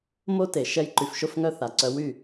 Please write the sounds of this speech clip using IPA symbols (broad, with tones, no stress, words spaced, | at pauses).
mo˦te˨ ʃɛ˧jǃy˨fʃo˧fŋœ˧ θa˨ǀœ˧ wy˦˨